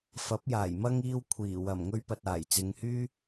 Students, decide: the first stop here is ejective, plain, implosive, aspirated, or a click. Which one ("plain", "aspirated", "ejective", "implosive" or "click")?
plain